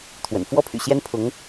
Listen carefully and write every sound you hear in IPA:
t̪ʰ w ə̰˨˩ n f w ɔ˥ pʰ y̰˨˩ ɕ j ɛ˥ n pʰ ʊ˧˥ ŋ

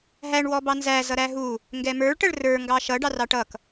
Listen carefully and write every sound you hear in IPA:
ɦ æ ɳ w ɔ b ɑ n z æ z ʌ ɾ æ ɦ u | ŋ ɡ ɛ m ə˞ ɭ ʈ ə ɭ r ə˞ ŋ ɡ ɑ ʃ ʌ ɖ ɑ r ɑ ʈ ʌ k

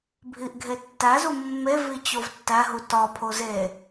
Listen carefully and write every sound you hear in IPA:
bʱ i ʔ ɡʱ e tː æ z u mː e v i t͡ɕ o v tː æ ɦ u t ɒ pʰ o z e

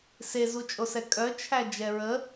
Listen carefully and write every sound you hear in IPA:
s e z u t͡ʃʼ o s ɛ kʼ œ t͡ʃʰ æ d͡ʒ ɛ ɹ ə

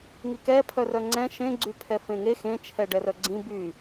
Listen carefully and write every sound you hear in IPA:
ŋ i k ɛ pʰ œ r œ ŋ͡ǀ ɛ̃ ʃ ẽ ɡ͡ǀ y pʰ ɛ f ẽ ŋ e x ẽ t͡ʃʰ ɛ ɖ ɛ r œ ɡ͡ǀ ĩ b y

